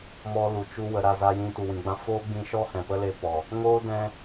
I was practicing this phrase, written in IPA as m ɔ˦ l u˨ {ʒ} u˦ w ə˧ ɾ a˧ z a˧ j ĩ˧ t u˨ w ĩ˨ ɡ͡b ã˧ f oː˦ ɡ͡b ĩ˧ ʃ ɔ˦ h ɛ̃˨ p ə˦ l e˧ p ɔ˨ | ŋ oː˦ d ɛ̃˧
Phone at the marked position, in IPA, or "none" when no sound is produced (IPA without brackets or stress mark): t͡ʃ